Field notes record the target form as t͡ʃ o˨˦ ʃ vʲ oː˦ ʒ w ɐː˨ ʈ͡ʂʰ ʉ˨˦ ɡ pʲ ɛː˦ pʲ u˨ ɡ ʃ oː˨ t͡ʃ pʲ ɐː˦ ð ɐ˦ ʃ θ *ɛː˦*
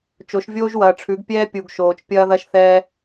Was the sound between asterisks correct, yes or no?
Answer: yes